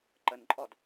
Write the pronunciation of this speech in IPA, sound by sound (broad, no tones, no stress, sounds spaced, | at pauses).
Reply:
ǃ ə n ǃʼ ɔ d